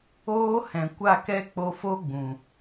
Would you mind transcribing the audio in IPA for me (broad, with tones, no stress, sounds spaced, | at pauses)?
oː˦ h ɛ̃˨ kʷ a˦˨ k ɛ˦ k͡p o˧ f o˦ ɡ͡b ũ˨